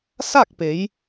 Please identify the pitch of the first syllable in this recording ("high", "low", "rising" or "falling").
falling